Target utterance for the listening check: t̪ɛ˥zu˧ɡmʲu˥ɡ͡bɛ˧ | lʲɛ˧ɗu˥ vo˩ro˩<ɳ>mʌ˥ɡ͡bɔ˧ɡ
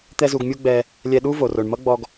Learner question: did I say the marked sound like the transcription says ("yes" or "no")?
yes